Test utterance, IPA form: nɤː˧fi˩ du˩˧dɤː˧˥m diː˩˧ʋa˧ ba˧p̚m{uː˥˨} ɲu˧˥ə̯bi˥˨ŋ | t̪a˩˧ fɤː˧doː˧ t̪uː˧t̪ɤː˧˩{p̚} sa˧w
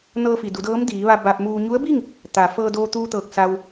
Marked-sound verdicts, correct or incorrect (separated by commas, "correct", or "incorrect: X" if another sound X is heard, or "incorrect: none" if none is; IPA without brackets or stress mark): incorrect: uː˧, incorrect: k̚